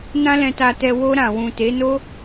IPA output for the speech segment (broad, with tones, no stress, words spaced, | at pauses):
nã˧lɛ̃˨ta˨tɛ˨ wo˧ ɾã˨wũ˨te˨˦no˦